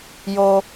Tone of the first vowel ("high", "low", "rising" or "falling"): high